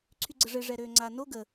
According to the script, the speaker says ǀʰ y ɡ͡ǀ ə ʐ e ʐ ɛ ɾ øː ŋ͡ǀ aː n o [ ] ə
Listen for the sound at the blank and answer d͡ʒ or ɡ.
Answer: ɡ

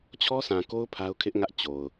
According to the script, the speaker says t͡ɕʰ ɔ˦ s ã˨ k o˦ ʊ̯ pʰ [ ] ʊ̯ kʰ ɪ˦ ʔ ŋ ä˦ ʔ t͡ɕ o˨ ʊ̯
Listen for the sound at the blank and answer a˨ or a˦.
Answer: a˦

